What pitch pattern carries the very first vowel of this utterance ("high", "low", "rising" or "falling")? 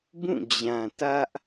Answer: falling